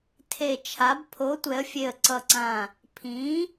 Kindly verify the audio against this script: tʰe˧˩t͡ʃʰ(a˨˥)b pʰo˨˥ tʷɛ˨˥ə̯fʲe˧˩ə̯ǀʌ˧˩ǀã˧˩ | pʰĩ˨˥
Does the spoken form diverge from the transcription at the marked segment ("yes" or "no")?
no